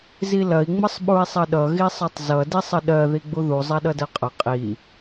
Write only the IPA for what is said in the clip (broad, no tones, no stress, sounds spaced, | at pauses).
z i l ɐ i̯ ŋ͡m ə sˤ ɓ u i̯ sˤ ɐ ɗ ʌ ɣ i sˤ ɐ tˤ z ʌ d i sˤ ə ɗ ɜ ð i ɡ͡b u ð u zˤ a ɗ ʌ d ɜ qʼ ɐ qʼ i